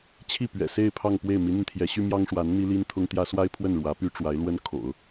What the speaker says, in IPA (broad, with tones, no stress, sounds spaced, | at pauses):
t͡ɕʰ i˥˩ p ɥ ɛ̰˨˩ s e˥˧ ɪ̯ pʰ ɑ˥˧ ŋ p w e˥˩ ɪ̯ m i˧˥ n̪ i˧ n t̪ʰ j ɛ˧˥ ɕ y˥ m j ɑ˥ ŋ ʂ w a˧˥ n n̪ i˥ l i˥ n t̪ʰ ʊ˥ ŋ t̪ j ä˥ s w a˥ ɪ̯ pʰ w ə˥˩ n ɻ w ä˧˥ p y˥ ʈ͡ʂ w a˧˥ ɪ̯ l w ə˥ n kʰ o̰˨˩˦ ʊ̯